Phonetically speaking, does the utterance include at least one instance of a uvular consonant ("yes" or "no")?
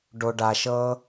no